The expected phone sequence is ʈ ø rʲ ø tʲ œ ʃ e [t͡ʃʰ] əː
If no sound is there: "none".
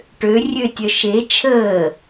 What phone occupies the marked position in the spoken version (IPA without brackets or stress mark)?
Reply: t͡ʃʰ